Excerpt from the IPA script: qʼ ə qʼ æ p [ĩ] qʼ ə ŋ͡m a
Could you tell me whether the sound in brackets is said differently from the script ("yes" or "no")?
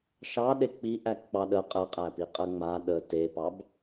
yes